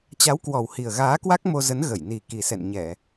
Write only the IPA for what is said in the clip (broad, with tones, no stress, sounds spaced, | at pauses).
t͡ɕ a˨˦ w k w ɔ˨˩ w h i˨˩ ə̯ ɣ aː˨˦ k w a˦˥ k̚ m o˧ z ə˨˦ n ɣ ə˧˩ j n i˨˩ k i˨˩ s ɛ̰˧˨ n ɲ ɛ˧˩˨